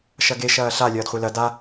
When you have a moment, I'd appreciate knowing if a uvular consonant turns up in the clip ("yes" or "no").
yes